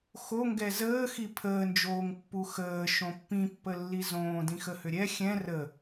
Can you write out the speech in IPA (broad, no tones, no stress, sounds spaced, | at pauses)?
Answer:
x o ŋ ɡ ɛ z əː x i pʰ əː n d͡ʒ oː ŋ pː u x əː ʃ õ pː ĩ pː ə lː i z õː d ĩ x ə h ʏ ɾʲ ɛ xʲ ɛ̃ r ə